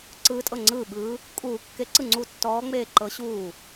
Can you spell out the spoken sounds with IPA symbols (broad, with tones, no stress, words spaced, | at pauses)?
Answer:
ǀɯː˨˦tʼɤ˧˩ ŋ͡ǀɯː˧˩ɓɯː˨˦ | kʼuː˨˩˦kːe˨˩˦ǀɯ˧˩ ŋ͡ǀu˧˩tːɔː˨˦ŋ͡meː˧˩ ǃɤ˨˦ɕuː˧˩